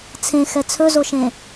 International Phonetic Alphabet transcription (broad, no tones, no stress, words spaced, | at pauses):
t͡sʰẽxɛ t͡sʰɵzoʃẽ